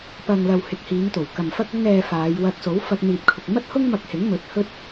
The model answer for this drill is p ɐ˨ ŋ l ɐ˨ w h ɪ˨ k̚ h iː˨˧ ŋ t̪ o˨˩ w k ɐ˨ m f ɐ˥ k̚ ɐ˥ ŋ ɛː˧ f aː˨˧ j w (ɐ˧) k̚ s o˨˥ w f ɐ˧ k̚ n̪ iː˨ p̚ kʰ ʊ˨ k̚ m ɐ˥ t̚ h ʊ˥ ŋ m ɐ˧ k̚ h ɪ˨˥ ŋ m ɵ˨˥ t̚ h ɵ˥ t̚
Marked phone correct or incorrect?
correct